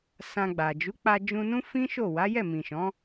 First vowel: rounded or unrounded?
unrounded